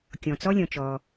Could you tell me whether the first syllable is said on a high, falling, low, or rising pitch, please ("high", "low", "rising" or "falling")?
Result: low